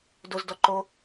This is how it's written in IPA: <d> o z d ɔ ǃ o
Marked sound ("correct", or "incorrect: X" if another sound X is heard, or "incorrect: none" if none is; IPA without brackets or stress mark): correct